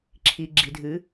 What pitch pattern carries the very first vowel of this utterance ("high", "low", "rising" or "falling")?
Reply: low